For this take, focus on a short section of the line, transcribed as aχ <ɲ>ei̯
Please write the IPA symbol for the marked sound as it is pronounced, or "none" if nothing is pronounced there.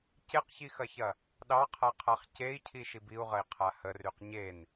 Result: c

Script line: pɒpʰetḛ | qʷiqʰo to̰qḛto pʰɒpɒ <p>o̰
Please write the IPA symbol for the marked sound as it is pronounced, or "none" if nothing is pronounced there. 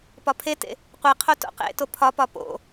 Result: p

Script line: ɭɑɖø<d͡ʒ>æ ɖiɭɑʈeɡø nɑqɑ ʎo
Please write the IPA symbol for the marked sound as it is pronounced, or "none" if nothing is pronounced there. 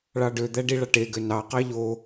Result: d̪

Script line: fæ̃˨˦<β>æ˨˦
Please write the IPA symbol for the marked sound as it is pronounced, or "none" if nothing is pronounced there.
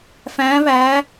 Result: β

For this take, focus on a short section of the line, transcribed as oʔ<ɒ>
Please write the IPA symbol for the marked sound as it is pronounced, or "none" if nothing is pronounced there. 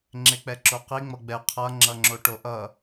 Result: ʌ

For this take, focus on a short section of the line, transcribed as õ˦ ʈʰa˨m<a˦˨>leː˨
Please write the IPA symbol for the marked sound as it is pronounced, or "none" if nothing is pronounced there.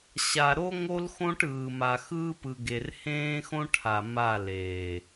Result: a˦˨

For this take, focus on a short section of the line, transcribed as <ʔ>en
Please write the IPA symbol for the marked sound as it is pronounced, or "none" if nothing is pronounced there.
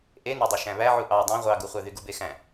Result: ʔ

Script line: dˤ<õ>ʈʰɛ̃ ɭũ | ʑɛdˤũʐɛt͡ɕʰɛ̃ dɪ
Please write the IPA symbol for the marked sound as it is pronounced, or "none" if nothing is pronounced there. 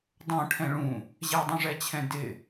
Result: õ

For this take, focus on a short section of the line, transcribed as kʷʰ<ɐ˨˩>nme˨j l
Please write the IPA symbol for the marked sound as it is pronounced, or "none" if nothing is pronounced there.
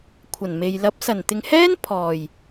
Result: ɐ˨˩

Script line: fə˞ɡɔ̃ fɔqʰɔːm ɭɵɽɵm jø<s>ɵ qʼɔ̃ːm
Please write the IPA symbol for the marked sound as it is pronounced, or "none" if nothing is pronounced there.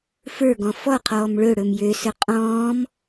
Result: s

